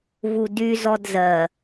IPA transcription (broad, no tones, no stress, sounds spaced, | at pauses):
v u d y z ɔ d z ɜ